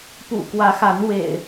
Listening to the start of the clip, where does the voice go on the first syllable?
low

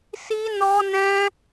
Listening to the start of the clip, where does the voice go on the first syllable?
high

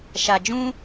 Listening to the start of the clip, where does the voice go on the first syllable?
low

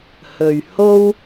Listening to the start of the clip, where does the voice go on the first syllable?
low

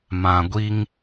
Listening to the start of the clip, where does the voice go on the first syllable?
low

